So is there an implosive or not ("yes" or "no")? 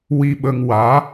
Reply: yes